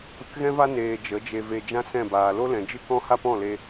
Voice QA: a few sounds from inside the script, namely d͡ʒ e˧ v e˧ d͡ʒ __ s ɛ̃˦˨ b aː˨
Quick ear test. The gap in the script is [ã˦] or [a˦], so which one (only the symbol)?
ã˦